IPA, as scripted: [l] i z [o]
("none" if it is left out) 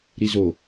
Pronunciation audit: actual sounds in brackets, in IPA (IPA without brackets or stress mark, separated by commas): ɾ, o